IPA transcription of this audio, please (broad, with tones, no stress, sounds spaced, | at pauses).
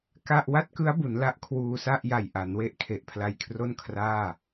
k a˥˩ ʔ w a˥˩ t̚ k ɯ˦˥ a̯ b u˩˦ n l a˦˥ ʔ kʰ w uː˧ s a˥˩ ʔ j a˨˩ j ʔ a˩˦ n w e˦˥ ʔ kʰ e˨˩ ʔ pʰ l a˧ j kʰ r o˥˩ n kʰ r aː˥˩